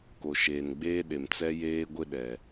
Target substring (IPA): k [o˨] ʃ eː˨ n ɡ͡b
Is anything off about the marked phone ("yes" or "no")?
no